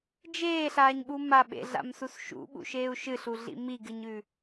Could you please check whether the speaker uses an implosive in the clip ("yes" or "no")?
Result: yes